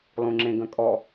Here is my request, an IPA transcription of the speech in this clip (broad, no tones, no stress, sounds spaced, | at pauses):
lˠ ũ ŋ͡ǁ ẽ ɡ ə̃ kʼ ɔ